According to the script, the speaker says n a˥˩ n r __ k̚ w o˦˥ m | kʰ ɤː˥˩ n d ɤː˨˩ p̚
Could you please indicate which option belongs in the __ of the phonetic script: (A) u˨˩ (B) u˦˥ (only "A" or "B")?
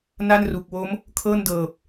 A